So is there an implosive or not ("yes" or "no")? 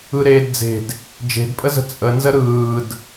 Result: no